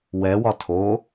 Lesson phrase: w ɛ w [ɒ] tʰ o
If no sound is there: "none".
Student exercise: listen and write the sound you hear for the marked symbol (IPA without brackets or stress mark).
ɒ